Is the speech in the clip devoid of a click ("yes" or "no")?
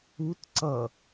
no